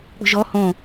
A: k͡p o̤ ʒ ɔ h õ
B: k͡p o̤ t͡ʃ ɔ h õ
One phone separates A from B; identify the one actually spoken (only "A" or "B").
A